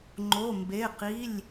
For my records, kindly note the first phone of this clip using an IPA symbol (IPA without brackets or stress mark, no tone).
ŋ͡ǃ